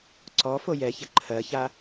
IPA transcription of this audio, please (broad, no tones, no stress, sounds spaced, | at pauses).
ǀ ɔ f o j ɛ ç ɘ ǃʰ ɜ ç a